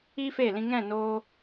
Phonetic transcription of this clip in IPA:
i˦ f e˦˨ l ĩ˧ ŋ ɛ̃˦˨ n oː˧

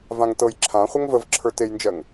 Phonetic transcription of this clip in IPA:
v ã ŋ t ɤ j ǁʰ ã χʷ ɐ ŋ v ə v ǁʰ ə˞ t e j n d͡ʒ ɜ ŋ

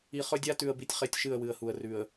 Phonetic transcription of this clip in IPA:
i˨ χ ɵ˦ dʲ a˦ t ʉ˨ ə̯ b i˦ tʲ χ e˦ tʲ ʃ ɨ˦˨ ə̯ w ɨ˨ ə̯ h u˨ ə̯ r ʉ˨ ə̯

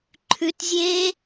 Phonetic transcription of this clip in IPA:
ǃʰ ʉ t zʲ eː

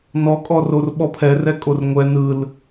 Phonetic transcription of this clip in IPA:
n ɔ kʼ ɔ r o r ɓ ɔ pʰ ɛ r ɛ kʼ o r ŋʷ ɛ n ɯ l

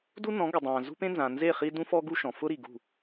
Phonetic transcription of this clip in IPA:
d u˦ n ɔ̃˨˦ ɡ ʊ˨ dˤ ãː˨ z ṳ˦ p ẽ˦ n z ã˨ n z e˦˨ χ i˦ d ũ˦ f ɔ˦ ɡ u˦ ʃ ɔ̃˨ f ʊ˦ ɾ i˨ ɡ ṳ˦˨

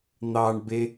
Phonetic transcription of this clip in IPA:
n̪ ɑ ɳ b e

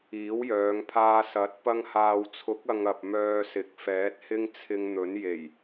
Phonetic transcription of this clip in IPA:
iː˨˥ w j œː˨˧ ŋ pʰ aː˧ s ɐ˨˥ t̚ p ɐ˧ ŋ h aː˨ w t͡sʰ ʊ˨˥ k̚ ɐ˨ ŋ ɐ˨ p̚ m œː˧ s ɪ˨ k̚ f ɛː˨˥ t̚ h ɪ˥ ŋ t͡sʰ ɪ˧ ŋ n̪ ɵ˨˥ n j e˨˩ j

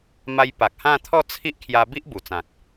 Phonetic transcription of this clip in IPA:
m a˧ j p a˨ k̚ h ã˥˧ t̪ʰ ɔ˥˧ t͡sʰ i˦ ʔ kʰ j a˧ b i˦ ʔ b u˨˩ t͡s ã˨ k̚

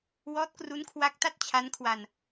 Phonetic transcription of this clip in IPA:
w ɔː˦˥ t̚ k r u˦˥ n kʰ w a˦˥ k̚ t a˥˩ t̚ t͡ɕʰ a˦˥ n kʰ w a˧ n

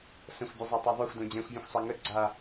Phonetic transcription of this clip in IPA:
s ə̃ xʷ bʲ ɛ zˤ a tˤ e ðˤ o xʷ d õ d͡ʑ ɛ̃ xʷ vʲ õ xʷ sˤ ɛ ŋ ə ɡ͡ǀ a

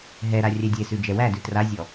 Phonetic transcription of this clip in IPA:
ɦ ɛ ɾ a rʲ ɛ dʲ e s ʉ d͡ʒ ɛ w æ d ʉ t r a zʲ ɔ

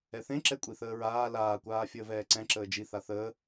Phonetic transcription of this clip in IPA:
ɛ θ ẽ ǁ ɛ kʷʼ i θ əː ɹ aː l aː kʷ aː fʲ əː v ɛː ǀ ɛ̃ ǁ əː d͡ʒ i θ a θ əː

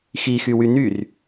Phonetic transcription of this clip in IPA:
x i x y w y n y r

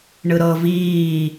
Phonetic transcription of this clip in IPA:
ɳ ɯ ɾ ɤ v iː

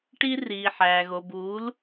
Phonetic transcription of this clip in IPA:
ʈ i˦ r iː˨ ħ æː˨ ɣ o˨ b uː˨˦ l

